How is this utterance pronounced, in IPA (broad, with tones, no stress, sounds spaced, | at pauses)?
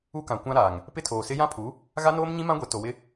u˦ k ã˨ kʷ ã˦ ɾ aː˨ ŋ | p ɪ˦ tʰ oː˨ s ɪ˦ j ã˦ pʰ u˨˦ | ɣ a˦ n oː˦ m ɲ ĩ˦ m ã˦ ɡʷ ɛ˨ t o˨ w ɪ˦